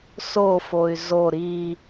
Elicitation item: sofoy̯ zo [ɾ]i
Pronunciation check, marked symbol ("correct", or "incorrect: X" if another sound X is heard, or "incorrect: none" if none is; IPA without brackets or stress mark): correct